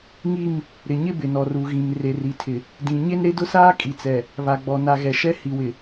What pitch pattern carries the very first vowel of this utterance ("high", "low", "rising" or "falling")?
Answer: falling